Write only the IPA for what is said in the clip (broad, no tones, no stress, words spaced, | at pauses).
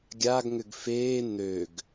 ɡʲaɡŋʏɡ feː n̪øɡ